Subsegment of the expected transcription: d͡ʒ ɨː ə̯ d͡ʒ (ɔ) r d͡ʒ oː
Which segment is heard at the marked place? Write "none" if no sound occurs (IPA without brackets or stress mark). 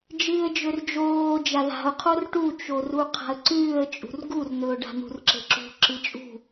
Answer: ɵ